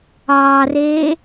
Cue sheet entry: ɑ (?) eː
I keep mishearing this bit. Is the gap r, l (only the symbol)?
r